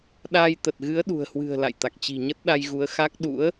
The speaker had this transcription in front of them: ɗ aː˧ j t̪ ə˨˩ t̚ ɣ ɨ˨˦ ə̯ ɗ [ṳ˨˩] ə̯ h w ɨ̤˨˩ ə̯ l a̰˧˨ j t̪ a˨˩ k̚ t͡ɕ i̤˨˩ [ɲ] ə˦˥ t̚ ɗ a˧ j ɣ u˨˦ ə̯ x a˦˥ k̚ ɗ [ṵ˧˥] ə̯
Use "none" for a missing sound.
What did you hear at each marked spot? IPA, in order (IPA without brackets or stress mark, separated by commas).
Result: ṳ˨˩, ɲ, ṵ˧˥